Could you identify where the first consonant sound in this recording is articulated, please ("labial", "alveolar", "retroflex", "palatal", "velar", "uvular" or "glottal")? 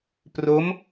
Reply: labial